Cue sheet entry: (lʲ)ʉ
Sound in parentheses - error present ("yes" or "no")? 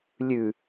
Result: no